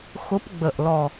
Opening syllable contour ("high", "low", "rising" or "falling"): rising